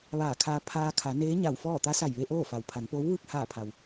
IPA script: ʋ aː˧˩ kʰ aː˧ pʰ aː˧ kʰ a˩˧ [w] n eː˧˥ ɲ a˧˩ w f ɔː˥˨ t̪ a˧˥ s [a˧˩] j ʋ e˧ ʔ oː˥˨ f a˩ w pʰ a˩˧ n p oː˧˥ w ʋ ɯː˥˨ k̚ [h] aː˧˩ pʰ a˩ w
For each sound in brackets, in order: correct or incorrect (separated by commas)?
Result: incorrect, correct, correct